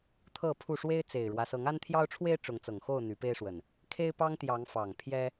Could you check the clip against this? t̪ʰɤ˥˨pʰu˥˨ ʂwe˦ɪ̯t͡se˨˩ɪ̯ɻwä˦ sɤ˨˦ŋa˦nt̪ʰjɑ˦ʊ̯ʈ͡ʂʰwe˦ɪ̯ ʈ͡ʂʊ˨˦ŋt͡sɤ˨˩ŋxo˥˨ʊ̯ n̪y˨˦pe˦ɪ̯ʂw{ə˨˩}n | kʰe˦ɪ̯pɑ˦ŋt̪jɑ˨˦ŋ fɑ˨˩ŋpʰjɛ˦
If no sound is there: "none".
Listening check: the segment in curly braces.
ə˨˩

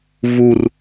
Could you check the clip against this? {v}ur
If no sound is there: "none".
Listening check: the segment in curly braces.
v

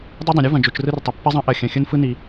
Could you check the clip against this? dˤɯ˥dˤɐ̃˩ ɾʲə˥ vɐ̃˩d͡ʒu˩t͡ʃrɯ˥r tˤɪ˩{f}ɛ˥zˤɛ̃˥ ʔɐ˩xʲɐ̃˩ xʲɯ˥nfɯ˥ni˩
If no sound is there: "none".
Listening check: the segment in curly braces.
pː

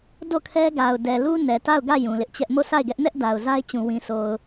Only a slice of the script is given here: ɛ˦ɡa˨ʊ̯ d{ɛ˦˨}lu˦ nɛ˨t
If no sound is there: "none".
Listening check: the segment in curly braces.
ɛ˨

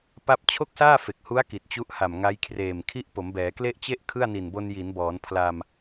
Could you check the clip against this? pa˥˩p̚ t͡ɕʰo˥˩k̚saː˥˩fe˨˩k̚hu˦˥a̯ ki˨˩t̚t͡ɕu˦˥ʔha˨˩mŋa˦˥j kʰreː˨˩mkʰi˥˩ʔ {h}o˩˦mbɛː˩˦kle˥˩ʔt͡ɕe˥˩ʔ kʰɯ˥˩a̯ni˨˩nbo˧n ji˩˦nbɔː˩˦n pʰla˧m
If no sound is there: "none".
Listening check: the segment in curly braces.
p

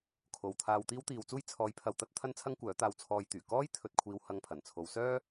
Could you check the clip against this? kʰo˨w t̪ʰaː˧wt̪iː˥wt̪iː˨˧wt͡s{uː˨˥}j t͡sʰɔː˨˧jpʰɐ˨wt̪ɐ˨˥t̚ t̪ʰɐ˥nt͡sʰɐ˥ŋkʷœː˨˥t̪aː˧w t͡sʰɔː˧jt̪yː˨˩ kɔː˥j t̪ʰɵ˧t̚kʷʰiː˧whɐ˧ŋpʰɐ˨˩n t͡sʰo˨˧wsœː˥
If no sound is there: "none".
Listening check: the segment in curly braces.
uː˥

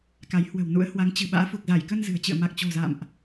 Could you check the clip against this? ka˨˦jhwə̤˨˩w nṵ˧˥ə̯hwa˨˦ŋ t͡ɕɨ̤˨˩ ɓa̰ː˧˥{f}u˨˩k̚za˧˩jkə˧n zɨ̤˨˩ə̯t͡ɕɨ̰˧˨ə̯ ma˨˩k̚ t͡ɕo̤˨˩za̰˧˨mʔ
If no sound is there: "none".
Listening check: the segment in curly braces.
f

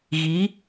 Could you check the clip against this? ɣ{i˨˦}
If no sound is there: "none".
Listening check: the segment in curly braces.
i˨˦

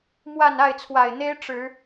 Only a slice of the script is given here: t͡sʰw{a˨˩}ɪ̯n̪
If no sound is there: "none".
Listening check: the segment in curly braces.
a˨˩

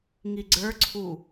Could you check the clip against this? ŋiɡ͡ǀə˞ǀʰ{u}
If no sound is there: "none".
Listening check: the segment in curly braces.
u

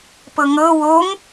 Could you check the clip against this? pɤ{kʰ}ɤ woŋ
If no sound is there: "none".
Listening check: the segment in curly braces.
ŋ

